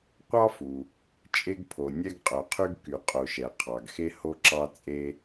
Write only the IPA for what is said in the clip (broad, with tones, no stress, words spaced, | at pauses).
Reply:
qʷɑ˥fu˩ | t͡ʃʼe˧ɡpʰo˩ nʲɛ˧ɡ qʼœ˩qʰy˧ɡ ky˩qʼo˩ʃɛ˩ qʰɑ˩ɡxe˧ ho˧ǁɑ˧t͡sʼe˧